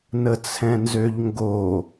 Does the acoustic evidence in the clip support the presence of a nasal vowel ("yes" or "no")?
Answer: yes